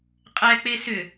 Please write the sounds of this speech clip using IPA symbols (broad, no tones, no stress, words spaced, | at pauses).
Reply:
qʼɛ k͡pesʏ